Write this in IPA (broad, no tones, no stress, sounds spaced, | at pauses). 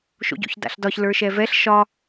ʃ o̰ ɟ o̰ ç d a̰ ɬ d ɒ ç l ə˞ ʃ ɛ v ɛ ɬ ʃ ɒ